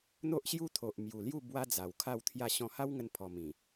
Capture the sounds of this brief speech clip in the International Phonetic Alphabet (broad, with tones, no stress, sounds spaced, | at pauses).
n̪ o˦ ʔ ɕ j u˦ t̪ʰ o˨ ʔ m j u˨˩ l j u˥˧ b w a˦ d͡z a˨˩ w kʰ a˥˧ w t̪ʰ j a˥˧ ɕ ɔ̃˧ h a˦ w ŋ ə˧ n pʰ ɔ˨˩ m ĩ˨˩